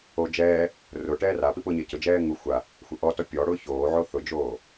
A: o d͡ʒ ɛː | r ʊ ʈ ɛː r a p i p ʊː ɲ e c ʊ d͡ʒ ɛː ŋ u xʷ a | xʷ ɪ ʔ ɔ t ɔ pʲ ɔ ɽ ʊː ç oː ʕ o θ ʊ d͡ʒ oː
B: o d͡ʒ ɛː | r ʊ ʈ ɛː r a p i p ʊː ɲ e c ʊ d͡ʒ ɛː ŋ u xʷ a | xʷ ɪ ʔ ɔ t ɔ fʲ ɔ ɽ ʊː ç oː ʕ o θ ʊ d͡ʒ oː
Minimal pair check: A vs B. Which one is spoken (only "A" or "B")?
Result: A